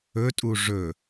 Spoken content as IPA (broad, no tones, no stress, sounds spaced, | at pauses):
ɵ tʼ u ʐ ɵ